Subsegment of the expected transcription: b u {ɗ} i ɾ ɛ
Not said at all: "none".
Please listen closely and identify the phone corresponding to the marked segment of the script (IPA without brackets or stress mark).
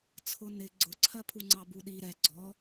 ɗ